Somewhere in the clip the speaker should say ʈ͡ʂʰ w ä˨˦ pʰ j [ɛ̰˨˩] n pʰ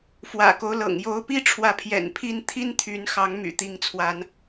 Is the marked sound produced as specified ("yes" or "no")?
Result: yes